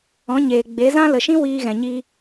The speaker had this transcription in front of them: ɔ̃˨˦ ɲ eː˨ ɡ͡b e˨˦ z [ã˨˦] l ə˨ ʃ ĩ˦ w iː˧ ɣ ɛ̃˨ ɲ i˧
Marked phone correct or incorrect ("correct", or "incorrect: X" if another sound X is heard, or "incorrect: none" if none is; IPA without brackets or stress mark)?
incorrect: ã˦